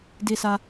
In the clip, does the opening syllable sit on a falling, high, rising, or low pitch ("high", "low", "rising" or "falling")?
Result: high